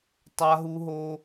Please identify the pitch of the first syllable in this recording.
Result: high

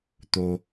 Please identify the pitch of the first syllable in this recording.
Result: low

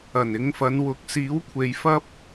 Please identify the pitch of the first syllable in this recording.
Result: low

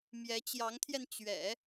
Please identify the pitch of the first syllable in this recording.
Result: rising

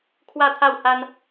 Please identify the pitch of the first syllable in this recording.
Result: falling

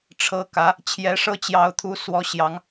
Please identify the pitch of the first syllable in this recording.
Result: rising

